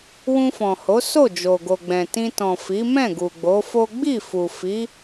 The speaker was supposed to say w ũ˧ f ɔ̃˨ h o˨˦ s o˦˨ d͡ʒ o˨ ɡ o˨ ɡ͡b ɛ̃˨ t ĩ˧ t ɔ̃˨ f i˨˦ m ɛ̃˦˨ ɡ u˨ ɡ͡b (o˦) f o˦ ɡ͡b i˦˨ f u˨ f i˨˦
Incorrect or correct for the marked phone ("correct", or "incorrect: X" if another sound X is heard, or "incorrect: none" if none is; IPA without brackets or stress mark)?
incorrect: o˨˦